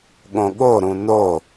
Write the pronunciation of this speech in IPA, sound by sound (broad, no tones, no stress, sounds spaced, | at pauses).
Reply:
ɠ õ ɠ o ɾ ũ n o